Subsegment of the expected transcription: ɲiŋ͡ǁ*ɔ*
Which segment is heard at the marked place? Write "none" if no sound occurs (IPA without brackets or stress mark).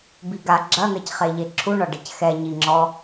ɔ